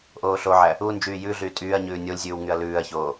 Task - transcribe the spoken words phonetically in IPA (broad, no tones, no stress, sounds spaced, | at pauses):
ʔ oː ɬ o ʕ æ | u n d͡ʒ yː j ʉ ɮ yː tʼ yː ɐ̯ ɲ ʉː nʲ o lʲ zʲ ʉː w ŋ y ɐ̯ l ʉː ɐ̯ ç oː